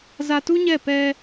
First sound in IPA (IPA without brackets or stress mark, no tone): z